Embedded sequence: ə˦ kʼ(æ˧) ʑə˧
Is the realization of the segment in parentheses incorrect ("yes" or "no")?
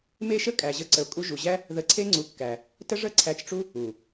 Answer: yes